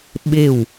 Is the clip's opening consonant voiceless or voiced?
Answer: voiced